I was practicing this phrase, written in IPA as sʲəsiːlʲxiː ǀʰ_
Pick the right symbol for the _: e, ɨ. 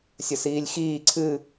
ɨ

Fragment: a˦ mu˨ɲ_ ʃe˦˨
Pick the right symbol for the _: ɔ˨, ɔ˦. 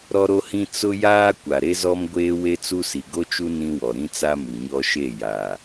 ɔ˦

